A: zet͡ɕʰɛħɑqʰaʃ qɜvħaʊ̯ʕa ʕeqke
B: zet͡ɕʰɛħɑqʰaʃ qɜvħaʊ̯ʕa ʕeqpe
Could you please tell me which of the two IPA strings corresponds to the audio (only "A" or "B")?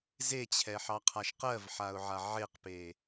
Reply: B